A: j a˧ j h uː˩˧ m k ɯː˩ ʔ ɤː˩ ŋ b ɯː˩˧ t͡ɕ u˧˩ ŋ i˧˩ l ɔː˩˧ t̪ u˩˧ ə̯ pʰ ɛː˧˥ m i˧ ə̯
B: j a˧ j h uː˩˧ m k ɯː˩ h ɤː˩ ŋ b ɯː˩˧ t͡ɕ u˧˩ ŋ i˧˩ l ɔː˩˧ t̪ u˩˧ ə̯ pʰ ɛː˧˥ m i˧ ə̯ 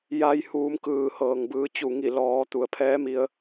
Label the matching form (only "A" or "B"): B